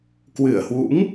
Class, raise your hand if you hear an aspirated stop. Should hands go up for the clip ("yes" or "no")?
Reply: no